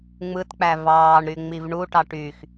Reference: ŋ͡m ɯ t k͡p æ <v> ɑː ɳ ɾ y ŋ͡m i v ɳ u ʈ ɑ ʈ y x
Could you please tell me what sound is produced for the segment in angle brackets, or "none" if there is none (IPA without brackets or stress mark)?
v